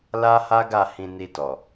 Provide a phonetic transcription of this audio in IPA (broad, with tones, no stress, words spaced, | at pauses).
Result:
la˦ha˦ɡa˦˨ hĩ˧ni˧ tɔ˨